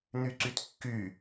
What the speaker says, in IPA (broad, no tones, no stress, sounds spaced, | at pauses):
n̪ y ǀ y t kː y